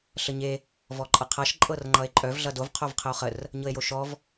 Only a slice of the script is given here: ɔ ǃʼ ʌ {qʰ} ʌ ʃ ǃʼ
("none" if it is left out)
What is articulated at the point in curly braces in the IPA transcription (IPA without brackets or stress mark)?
qʰ